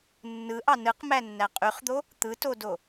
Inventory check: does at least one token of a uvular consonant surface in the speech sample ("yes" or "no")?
yes